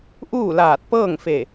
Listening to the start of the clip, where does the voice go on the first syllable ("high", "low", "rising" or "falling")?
falling